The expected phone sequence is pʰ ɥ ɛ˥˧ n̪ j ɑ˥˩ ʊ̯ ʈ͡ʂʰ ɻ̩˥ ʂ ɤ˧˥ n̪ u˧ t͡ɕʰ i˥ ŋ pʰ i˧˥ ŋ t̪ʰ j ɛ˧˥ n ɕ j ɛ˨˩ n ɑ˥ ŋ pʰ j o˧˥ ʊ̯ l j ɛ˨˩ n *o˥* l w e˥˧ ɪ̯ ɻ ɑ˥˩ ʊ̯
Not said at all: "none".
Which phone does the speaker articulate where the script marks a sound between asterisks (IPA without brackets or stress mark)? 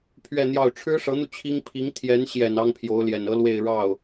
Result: ɤ˥